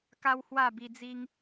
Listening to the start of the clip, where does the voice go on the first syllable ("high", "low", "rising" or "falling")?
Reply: high